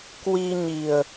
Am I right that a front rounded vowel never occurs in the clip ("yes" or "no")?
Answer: yes